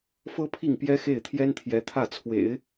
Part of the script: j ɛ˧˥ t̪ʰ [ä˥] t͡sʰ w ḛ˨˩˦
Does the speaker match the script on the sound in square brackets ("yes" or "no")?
no